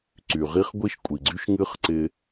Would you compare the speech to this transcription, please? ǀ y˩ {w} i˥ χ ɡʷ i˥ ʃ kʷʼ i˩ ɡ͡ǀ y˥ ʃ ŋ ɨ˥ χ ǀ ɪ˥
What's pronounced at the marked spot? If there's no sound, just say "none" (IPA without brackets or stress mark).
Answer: ʁ